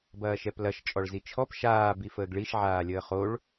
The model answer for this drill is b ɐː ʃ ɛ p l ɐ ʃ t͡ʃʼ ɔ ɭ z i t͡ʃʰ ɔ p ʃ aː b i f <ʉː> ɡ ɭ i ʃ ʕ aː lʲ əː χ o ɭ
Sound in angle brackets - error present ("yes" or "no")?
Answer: yes